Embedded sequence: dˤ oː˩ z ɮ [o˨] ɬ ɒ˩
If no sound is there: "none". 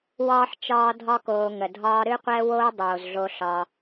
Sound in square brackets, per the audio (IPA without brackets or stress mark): o˨